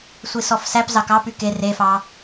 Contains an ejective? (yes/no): no